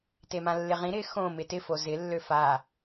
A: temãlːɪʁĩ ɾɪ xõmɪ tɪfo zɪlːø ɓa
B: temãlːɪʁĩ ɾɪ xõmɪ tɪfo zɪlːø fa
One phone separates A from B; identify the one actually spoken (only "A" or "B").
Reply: B